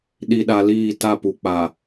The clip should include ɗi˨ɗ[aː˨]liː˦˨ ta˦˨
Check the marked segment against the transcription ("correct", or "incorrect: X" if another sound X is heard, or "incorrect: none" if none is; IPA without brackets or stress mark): incorrect: a˨